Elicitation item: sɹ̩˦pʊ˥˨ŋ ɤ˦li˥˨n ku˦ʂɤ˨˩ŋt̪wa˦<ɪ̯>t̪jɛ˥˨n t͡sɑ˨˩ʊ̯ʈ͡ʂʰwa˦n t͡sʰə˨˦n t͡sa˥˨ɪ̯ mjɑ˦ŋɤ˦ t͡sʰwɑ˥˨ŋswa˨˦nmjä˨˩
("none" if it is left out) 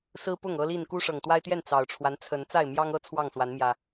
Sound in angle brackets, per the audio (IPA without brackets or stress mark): ɪ̯